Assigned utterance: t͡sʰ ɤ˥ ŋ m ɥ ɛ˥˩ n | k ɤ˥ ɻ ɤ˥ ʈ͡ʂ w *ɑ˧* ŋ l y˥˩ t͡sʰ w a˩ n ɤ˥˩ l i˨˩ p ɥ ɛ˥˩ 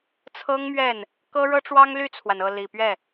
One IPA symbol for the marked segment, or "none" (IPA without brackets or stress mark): ɑ˥